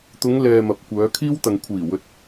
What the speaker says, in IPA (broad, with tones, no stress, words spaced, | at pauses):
t̪ʊ˨˧ŋlɛː˨ mɐ˨˥p̚kʷœː˨˧kʰiː˥w t̪ɐ˨ŋkʷʰiː˨˩wɵ˨t̚